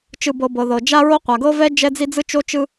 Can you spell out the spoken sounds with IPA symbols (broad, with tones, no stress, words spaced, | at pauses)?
t͡ʃɯ˩bɤ˩ bɤ˩ðɤ˩d͡ʒa˥ɹo˥ qʷa˩ɡɤ˥ vɛ˥ d͡ʒɛ˥d͡zi˥ d͡zɯ˥t͡ʃo˥ t͡ʃɯ˥